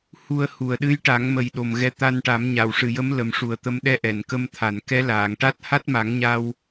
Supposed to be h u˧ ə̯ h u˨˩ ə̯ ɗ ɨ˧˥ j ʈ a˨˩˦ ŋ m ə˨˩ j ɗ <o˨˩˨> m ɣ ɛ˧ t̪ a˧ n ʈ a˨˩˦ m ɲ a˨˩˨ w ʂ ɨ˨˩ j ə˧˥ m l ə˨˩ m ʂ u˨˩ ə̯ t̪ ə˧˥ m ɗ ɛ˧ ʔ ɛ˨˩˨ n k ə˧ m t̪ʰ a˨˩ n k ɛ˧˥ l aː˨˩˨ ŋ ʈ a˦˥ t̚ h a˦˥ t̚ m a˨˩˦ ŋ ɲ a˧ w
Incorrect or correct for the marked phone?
incorrect: o˨˩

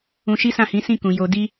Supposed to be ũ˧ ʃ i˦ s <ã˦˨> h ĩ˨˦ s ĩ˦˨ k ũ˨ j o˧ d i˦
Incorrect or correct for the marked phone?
correct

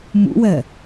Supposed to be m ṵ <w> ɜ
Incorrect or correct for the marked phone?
correct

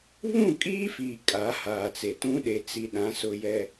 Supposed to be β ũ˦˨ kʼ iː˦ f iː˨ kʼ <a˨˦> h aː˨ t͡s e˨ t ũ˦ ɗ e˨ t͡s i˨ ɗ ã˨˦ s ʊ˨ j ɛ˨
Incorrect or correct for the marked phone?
correct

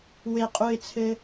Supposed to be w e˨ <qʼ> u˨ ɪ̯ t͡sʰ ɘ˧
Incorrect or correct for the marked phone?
correct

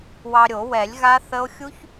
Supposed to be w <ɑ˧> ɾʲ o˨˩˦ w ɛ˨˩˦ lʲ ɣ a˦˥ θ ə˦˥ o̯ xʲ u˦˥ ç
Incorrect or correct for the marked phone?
correct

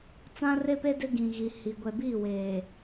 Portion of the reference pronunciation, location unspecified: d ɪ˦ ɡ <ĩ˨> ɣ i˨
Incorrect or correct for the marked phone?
correct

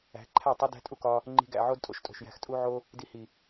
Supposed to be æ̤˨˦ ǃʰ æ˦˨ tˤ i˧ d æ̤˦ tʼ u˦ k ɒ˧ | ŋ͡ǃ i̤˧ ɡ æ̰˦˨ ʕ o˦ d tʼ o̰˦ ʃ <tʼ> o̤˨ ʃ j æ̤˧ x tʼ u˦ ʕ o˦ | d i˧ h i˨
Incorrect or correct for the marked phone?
correct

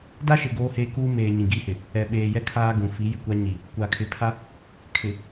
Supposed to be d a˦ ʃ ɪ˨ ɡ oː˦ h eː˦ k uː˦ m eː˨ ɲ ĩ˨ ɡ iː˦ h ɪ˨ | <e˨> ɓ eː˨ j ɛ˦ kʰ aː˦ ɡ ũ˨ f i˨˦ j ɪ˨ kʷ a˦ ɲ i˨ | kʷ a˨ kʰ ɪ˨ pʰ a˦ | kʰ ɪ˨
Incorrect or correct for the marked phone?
incorrect: ɛ˨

